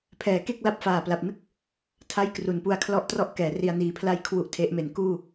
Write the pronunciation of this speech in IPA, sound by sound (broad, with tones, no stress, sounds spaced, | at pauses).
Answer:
pʰ ɛː˩˦ k e˥˩ k̚ l a˦˥ p̚ f aː˨˩ p l a˨˩ p̚ n ɯ˥˩ k̚ | tʰ a˥˩ j k r u˩˦ n p u˧ a̯ kʰ l ɔ˥˩ ʔ t r ɔ˥˩ ʔ k ɛː˩˦ r i˧ a̯ n iː˨˩ pʰ l a˥˩ j kʰ w u˥˩ ʔ tʰ e˦˥ ʔ m e˩˦ n k uː˥˩